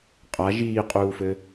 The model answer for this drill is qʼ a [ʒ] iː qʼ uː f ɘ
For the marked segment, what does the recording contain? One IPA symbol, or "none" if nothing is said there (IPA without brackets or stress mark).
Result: ʒ